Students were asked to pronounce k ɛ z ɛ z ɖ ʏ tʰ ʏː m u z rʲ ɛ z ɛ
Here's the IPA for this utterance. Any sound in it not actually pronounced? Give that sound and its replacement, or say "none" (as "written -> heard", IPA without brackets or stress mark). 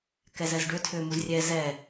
none